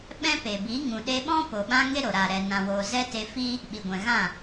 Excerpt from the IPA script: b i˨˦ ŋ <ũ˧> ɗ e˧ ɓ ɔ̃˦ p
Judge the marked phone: incorrect: ũ˨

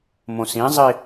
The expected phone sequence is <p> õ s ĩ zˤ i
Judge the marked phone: incorrect: m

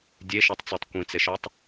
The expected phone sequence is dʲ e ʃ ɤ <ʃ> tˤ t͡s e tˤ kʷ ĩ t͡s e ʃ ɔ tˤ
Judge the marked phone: incorrect: none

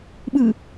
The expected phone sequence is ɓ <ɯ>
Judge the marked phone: correct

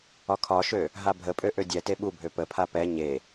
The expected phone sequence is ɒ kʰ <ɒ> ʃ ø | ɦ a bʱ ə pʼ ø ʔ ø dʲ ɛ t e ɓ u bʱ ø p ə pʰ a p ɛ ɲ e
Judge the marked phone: correct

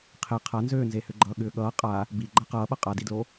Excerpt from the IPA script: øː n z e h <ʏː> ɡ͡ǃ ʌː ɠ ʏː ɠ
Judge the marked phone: incorrect: ʏ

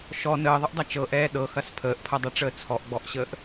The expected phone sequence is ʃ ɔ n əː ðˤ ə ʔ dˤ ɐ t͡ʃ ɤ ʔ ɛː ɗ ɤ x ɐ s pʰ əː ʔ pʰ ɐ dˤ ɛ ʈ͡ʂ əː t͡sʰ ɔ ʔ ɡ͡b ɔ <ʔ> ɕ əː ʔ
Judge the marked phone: correct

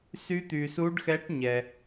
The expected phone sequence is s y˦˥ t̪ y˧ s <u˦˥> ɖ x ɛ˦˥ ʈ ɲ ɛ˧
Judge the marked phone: correct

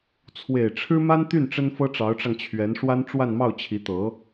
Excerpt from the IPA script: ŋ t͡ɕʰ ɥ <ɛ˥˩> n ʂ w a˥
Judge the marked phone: incorrect: ɛ˧˥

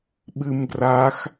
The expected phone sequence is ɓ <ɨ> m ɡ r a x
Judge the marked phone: correct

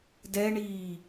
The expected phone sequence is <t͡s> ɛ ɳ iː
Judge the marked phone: incorrect: d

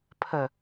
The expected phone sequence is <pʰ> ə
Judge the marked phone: correct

